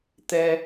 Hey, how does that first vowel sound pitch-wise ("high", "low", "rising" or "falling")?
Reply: low